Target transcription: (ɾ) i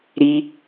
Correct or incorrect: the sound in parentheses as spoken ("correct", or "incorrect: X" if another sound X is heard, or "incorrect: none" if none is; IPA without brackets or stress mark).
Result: correct